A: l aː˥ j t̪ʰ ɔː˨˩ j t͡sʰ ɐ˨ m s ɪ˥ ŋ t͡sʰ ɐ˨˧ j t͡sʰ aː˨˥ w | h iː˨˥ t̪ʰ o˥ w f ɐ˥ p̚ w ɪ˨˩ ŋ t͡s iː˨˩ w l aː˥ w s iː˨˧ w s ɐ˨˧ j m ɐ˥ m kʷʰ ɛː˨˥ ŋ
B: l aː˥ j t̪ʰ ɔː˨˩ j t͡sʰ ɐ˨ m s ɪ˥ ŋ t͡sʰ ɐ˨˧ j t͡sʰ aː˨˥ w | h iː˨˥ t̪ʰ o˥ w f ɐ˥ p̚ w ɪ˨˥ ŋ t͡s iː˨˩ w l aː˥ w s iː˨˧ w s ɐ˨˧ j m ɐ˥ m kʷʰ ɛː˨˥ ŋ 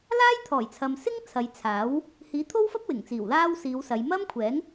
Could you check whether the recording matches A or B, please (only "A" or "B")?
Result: A